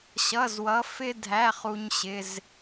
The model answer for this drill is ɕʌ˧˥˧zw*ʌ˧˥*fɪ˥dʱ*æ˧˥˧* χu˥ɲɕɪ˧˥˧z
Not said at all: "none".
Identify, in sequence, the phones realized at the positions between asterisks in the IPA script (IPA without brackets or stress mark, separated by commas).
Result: ʌ˧˥, æ˧˥˧